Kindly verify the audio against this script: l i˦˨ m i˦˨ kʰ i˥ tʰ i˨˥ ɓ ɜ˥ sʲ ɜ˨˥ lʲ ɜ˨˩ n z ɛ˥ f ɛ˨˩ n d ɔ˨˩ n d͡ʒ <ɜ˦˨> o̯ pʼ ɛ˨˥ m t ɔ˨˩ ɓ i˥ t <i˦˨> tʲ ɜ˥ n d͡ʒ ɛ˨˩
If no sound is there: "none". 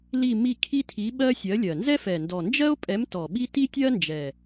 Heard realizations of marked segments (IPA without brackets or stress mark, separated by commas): ɜ˥, i˥